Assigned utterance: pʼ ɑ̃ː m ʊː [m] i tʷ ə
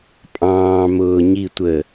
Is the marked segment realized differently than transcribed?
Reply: yes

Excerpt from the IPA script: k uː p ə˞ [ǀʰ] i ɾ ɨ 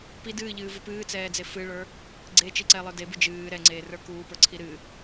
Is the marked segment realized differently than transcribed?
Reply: no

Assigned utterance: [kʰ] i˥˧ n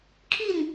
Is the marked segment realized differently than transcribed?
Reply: no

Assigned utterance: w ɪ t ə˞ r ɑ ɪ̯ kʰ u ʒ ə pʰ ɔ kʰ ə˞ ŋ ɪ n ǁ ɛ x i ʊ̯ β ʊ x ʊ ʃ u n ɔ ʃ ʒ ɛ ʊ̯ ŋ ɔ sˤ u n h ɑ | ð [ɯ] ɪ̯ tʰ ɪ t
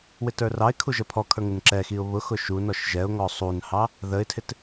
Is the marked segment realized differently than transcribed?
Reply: yes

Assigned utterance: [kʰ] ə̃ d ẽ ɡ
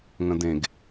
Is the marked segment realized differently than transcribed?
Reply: yes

